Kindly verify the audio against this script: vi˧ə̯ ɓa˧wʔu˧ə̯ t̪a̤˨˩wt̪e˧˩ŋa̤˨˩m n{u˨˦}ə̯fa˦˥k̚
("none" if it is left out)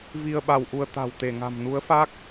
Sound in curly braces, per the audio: u˨˦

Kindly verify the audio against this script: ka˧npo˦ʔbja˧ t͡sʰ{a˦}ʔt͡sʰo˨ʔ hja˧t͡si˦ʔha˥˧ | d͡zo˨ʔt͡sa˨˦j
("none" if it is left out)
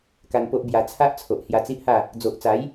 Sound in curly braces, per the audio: a˦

